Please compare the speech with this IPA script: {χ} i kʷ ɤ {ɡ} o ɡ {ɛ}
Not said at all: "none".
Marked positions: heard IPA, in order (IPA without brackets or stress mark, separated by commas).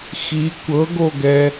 x, ɡ, ɛ